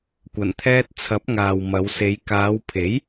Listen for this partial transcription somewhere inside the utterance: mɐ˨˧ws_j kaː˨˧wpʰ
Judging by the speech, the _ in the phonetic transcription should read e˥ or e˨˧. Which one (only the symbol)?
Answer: e˨˧